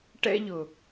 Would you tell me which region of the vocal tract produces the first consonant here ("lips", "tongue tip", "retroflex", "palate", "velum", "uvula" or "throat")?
retroflex